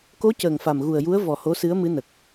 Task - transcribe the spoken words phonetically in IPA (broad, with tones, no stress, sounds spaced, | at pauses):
k o˧˥ c əː˨˩ ŋ f a˨˩ m ɣ u˨˩ ə̯ j u˧˥ ə̯ v ɔ˨˩ h o˧˥ s ɨ˧˥ ə̯ m ɨ˧˥ n ə˨˩ k̚